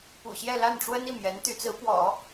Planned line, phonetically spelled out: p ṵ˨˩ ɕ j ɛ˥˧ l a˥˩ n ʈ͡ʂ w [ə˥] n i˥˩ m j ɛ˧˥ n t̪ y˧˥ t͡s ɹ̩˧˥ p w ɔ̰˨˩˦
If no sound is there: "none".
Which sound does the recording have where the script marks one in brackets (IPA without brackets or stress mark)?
ə˥